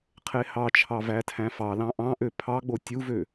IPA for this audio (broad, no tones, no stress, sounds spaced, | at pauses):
qʰ e h ɑ t͡ʃʰ ɑ v æ tʰ æ̃ f ɑ l ɑ̃ ʔ ɑ̃ ʔ ø pʰ ɑ ɡ͡b o tʲ u v ø